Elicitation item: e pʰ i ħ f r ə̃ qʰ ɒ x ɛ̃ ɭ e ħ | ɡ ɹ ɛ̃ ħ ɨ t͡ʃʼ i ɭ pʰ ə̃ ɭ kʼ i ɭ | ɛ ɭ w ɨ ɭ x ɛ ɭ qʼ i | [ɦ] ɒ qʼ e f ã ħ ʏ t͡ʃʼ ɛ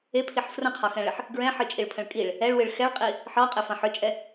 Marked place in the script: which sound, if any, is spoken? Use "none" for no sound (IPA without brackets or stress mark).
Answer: ħ